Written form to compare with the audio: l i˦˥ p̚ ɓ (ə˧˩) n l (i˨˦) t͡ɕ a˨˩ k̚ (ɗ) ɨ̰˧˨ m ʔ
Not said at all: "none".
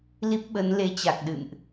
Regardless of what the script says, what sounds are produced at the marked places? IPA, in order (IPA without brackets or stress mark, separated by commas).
ə˨˦, e˨˦, ɗ